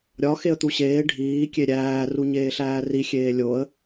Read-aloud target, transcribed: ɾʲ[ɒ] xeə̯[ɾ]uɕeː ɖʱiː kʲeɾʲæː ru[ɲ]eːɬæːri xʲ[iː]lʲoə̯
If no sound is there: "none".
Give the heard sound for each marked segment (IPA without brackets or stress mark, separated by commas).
ɒ, t̪, ɲ, eː